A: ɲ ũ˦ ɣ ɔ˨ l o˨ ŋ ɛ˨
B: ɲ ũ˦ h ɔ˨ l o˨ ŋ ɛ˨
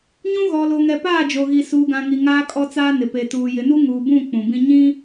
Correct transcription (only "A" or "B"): A